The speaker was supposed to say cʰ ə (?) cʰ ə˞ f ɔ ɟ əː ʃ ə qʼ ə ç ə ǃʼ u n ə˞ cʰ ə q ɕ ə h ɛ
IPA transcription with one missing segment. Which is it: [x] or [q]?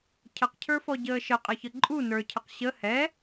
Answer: q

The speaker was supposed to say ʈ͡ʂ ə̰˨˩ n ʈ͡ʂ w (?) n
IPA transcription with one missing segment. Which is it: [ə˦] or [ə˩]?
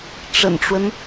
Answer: ə˦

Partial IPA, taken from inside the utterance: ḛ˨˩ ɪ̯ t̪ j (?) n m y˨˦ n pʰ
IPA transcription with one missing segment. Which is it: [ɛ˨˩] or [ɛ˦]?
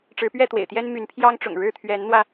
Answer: ɛ˦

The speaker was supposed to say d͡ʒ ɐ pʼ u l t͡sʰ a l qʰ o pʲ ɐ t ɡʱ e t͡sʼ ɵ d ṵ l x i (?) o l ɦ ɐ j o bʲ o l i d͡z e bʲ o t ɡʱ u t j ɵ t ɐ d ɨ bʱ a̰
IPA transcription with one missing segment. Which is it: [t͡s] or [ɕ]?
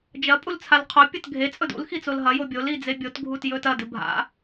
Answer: t͡s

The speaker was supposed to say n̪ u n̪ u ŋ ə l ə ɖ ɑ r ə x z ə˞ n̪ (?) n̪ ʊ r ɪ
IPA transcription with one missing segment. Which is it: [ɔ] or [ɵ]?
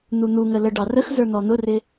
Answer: ɔ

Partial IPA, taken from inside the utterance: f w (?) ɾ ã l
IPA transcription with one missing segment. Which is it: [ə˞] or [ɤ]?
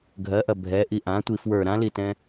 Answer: ə˞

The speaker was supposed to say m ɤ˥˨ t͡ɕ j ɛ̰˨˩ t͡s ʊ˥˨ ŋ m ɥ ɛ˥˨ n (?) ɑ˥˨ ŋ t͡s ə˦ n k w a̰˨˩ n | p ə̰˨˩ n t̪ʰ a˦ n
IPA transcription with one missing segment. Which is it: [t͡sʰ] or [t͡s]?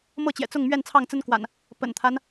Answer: t͡sʰ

